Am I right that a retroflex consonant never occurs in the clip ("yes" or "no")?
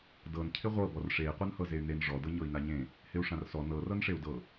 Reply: no